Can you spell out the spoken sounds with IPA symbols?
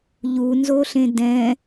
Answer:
ʎ u n z o ɬ ẽ d ɛ̃

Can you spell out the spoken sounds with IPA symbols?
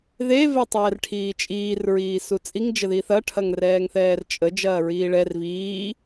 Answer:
ð e v e tˤ ɛː r ʈʰ iː t͡ʃʼ iː r ɹ iː s u t͡sʼ i ŋ d͡ʒ ə ð i θ ɐ ʈʰ ɐ ŋ r ɛː ŋ θ ɛː r t͡ʃʼ ə d͡ʒ ɐː ɹ iː ɭ ɛ r v iː

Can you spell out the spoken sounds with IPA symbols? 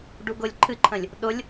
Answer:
ɖ u ɡ ʊ lʲ ǃʰ ɨ ǃʰ ə̃ lʲ | ɗ ʊ lʲ

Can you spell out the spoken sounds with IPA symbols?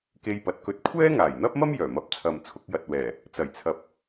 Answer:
k e˧ j p ɐ˨˥ t̚ k ɵ˧ t̚ kʷʰ ɛː˥ ŋ aː˨˩ j n̪ ɐ˥ p̚ m ɐ˥ m j œː˨˩ m ɐ˨˥ p̚ t͡sʰ ɐ˨ m t͡sʰ ʊ˧ k̚ j ɐ˨ t̚ w ɛː˨˩ | t͡s ɐ˨˩ j t͡sʰ ɐ˨ p̚

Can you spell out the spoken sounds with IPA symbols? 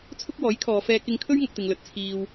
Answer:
t͡sʰ ʊ˥ k̚ w ɔː˨˥ j kʰ ɔː˨˧ f ɛː˧ k ɪ˧ ŋ kʰ ɵ˥ ɥ ŋ ɐ˧ k̚ t̪ ɪ˨ ŋ l ɵ˨˥ t̚ t͡sʰ iː˧ w

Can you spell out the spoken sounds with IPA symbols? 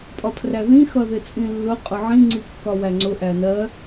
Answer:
pʼ ɒ pʰ r æ ð ĩ x ʌ ð ɪ t͡sʼ ĩ lː ʊ qʼ ʊ ʕ ĩ ŋ͡ǀ i kː ɒ w æ ŋ͡ǀ ʊ ʔ æ n ɜ

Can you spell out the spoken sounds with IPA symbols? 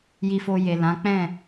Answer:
j i˧ f o˧ j e˨ l ã˨˦ k͡p ɛ̃˦˨

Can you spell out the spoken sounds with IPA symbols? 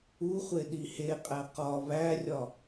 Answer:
u χʷ e ɗ i h e qʼ æ q ɒ β æ rʲ ɒ

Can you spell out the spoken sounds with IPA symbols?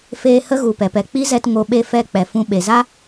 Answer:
f eː˧ h ə˦ ɣ u˨ p ɛ˨ p ɛ˨ k͡p i˦ z ɛ˧ t ŋ o˧ ɓ e˦˨ f ɛ˦˨ k͡p ɛ˨ f ũ˧ ɓ e˨ z a˦

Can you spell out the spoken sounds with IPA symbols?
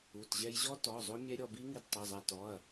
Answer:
u˩˧˩ t ʑ ɛ˧ j ʑ ɔ˦˥ t ɔ˩˧˩ zˤ o˦˥ mʲ ɛ˦˥ ɾʲ ɔ˧ b i˦˥ ŋ i˧ d tˤ ɘ˩˧˩ zˤ a˧ t ɔ˩˧˩ ɐ̯

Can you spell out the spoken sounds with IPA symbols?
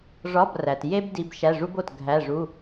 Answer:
ʐ ɒ˧˥˧ b r æ˨ t j e˥ b d i˧˥˧ b ʃ æ˧˥˧ ʐ u˥ b o˥˩ t ɡʱ æ˧˥˧ ʐ u˧˥˧

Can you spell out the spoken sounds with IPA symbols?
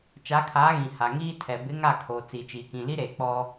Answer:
t͡ʃ a˨˦ kʰ aː˨˦ ɣ ĩ˨ h a˨ ŋ iː˦ tʰ ɛ˨ b ɪ˨˦ ŋ a˦˨ kʰ oː˨ t͡s i˨ t͡ʃ iː˨ k ĩ˨ l i˦ ɾ eː˨ k͡p ɔ˦

